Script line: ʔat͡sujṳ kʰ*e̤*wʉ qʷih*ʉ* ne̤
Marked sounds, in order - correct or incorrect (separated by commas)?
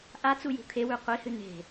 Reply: incorrect, incorrect